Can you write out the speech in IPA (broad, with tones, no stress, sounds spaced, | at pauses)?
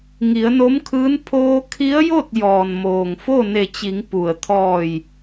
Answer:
ŋ i˩˧ ə̯ n o˧˥ m kʰ ɯː˧˥ n pʰ oː˧ kʰ i˧˥ ə̯ j o˥˨ t̚ j ɔː˩ n m oː˩ ŋ f o˥˨ n e˧˩ t͡ɕ i˩˧ ŋ p u˩ ə̯ t̪ʰ ɔː˧˩ j